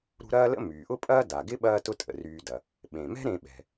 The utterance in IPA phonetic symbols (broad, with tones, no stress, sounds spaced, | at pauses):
ɾ ṳ˦ ɾ ɐː˥ l ə̰˥ m yː˩ ʔ ʊ˥ pʼ ɐː˥ d a˩ ɡ ɪ˥ ɓ ɐː˦ t ʊ˦ tʼ ə̰˩ r yː˨ d ɐ˩ | ɓ ẽ˩ m ɛ̤˥ ɾ ẽ˨ ɓ ɛ̤˩